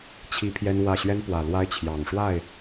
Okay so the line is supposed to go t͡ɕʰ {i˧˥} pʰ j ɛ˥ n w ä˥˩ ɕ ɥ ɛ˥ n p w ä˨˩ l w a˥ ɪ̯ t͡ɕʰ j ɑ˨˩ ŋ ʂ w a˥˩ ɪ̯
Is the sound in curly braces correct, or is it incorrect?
incorrect